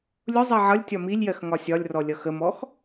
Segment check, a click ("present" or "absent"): absent